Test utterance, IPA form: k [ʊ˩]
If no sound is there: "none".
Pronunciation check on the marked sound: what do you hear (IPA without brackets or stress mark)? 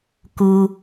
u˩